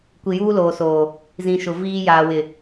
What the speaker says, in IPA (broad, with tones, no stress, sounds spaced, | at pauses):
kʷ i˨ j uː˦ l oː˨ s oː˨ | z ĩ˨ ʃ ʊ˨ v iː˦ j aː˨ w ɪ˨